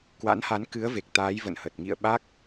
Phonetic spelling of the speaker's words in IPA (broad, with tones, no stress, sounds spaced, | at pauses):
k w a̰˧˥ n h a˨˦ n k ɨ˨˦ ə̯ v e˨˩ k̚ t̪ aː˨˦ j v ə̰˧˨ n h ə˨˩ t̚ ŋ ḭ˧˨ ə̯ ɓ a˦˥ k̚